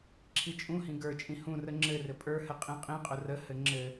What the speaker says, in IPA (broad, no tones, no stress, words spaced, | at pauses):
ǁʰit͡ʃʼũhĩ ɡə˞t͡ʃʼĩ hũrə ŋ͡ǁɘrɘ pʼə˞hɘ qʼĩqʼĩqʼʊ rəhɘ ŋ͡ǁɘ